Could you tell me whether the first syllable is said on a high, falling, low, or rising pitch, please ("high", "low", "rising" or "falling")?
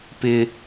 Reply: high